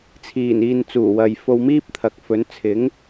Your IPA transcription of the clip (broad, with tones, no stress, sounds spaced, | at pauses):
t͡sʰ iː˨˩ n iː˨ n t͡s uː˨˩ w ɐ˨ j f o˧ w m iː˥ p̚ t̪ʰ ɐ˨ k̚ f ɵ˨˥ n t͡sʰ ɪ˨˥ ŋ